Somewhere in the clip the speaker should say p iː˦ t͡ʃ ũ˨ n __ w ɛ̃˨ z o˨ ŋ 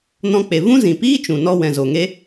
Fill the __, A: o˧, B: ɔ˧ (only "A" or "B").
B